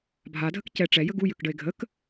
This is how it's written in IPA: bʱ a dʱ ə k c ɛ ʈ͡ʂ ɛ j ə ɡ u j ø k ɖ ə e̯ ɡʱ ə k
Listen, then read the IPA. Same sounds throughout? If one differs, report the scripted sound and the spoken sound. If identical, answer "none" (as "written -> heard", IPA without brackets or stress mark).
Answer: none